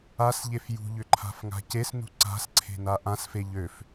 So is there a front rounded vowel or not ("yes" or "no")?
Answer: yes